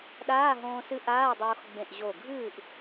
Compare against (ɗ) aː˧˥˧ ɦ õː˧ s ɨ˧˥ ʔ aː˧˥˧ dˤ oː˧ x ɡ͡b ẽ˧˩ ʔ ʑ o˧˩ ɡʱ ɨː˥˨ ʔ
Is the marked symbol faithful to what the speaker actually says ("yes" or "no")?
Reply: yes